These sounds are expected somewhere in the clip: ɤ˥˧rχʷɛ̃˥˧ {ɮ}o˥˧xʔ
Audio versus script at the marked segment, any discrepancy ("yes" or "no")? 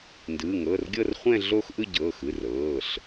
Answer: no